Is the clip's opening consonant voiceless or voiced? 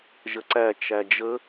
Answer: voiced